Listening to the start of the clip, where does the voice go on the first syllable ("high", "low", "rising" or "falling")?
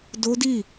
high